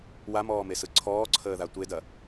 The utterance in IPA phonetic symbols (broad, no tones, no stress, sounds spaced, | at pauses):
w a m ɔː m e s ɯ ǀʰ ɔː ǀʰ əː ð a tʷ e d ɐ